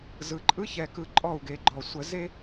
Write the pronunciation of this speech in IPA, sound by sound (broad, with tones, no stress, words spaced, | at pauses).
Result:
zɯ˨ǃʼɯ˦ çɛ˨kɯ˨ ǃʼɔ˦˨u̯ɡe˨ɡ͡ǃɔ˨ sʷə˨ ze˦